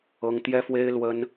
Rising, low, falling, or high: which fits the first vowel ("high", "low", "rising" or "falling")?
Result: high